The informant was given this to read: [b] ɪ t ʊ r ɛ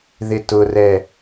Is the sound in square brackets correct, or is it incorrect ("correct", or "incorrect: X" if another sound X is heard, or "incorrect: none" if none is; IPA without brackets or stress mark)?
incorrect: ð